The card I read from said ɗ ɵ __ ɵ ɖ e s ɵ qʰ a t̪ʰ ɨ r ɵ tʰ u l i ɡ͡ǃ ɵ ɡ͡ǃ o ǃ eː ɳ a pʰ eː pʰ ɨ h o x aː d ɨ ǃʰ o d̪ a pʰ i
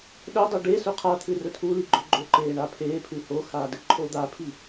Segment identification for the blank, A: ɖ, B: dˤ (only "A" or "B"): B